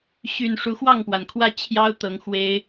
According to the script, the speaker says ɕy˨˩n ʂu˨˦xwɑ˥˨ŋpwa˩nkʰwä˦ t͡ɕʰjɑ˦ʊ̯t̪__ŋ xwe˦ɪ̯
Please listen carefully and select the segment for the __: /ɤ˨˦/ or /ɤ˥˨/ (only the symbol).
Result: ɤ˨˦